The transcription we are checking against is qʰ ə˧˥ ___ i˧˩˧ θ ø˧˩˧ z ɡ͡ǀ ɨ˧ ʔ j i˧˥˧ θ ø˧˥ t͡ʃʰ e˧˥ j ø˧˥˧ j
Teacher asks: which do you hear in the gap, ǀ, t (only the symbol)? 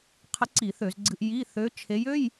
ǀ